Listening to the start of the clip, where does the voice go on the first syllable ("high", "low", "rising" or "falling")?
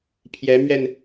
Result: rising